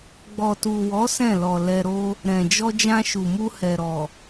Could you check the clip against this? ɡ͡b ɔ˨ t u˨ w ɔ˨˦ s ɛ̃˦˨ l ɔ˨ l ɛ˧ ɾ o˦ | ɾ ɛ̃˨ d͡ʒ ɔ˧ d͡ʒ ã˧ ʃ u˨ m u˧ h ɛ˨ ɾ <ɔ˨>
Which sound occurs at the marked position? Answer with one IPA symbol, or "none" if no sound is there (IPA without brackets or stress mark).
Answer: ɔ˨